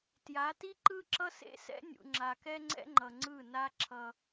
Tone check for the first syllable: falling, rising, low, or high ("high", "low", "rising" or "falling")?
rising